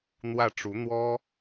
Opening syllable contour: falling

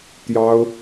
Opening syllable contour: high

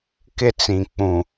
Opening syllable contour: high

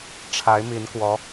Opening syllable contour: rising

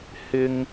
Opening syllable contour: high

